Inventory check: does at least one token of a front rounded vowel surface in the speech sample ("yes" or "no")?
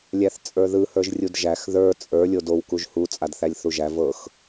no